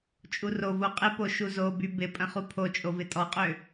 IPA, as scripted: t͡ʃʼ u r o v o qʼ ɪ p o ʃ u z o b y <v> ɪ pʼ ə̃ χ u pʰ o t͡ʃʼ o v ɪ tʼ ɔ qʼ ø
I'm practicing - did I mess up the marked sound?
yes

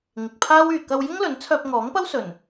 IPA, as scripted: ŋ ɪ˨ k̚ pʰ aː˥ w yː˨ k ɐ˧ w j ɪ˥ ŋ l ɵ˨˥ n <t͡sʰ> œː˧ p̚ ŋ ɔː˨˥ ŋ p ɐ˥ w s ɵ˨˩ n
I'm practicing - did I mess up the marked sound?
no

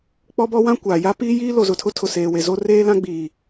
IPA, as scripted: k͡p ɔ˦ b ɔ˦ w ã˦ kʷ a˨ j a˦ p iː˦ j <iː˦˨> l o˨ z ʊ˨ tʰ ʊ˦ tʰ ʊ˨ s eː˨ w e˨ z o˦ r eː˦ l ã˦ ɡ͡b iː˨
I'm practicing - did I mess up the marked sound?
yes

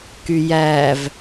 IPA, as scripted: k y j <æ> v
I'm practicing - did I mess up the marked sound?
no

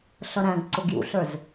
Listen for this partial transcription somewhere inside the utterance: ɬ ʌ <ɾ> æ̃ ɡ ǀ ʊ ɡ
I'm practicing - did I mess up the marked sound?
no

